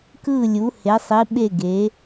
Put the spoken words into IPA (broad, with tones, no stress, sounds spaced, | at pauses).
k ɯ˧˩ lʲ u˩˧ h e˩˧ sˤ i˩˧ ɓ e˧˩ ɡ e˩˧